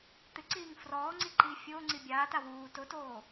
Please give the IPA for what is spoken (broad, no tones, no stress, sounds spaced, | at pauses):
t̪ ɪ ǀ iː ŋ f r ɔː ŋ͡ǀ i ǃ iː fʲ ʊː ŋ͡ǀ i bʲ aː t a w uː t ʊ t oː